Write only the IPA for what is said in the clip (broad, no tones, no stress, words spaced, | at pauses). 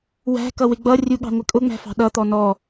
wæ̤ kʌwɪɡ͡bʌrʲu ɠɑ̤ŋʷɪkʼʊŋ͡mæ̤ fɑ̤ɗʌt̪ɔ nɔ